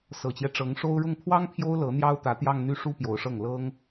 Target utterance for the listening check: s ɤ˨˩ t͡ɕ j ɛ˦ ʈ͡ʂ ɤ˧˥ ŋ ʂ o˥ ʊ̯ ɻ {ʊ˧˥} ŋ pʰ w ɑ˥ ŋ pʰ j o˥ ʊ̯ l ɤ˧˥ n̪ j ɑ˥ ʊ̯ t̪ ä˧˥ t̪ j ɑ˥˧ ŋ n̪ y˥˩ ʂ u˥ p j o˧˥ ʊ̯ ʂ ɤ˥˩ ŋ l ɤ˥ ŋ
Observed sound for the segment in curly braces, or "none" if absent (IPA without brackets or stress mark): ʊ˥˩